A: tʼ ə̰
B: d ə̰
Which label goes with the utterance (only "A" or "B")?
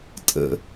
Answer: A